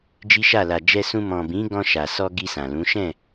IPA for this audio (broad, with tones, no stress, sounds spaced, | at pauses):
d͡ʒ i˦ ʃ a˦˨ l a˨ d͡ʒ ɛ˧ s ũ˧ m ɔ̃˨ b ĩ˨˦ ɡ ɔ̃˧ ʃ a˨ s ɔ˧ ɡ i˧ s ã˨ l ũ˨˦ ʃ ɛ̃˦˨